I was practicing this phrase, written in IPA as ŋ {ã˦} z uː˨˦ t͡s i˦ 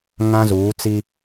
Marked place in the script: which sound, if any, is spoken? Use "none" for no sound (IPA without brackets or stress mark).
ã˦